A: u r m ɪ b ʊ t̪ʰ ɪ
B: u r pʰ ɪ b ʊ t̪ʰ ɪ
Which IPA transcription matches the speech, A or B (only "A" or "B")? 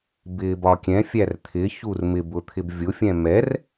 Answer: A